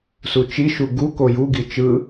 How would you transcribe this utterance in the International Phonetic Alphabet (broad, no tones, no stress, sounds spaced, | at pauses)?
s u t͡ʃ i ʃ u ɡ u k o j u ɡ i t͡ʃ ɯ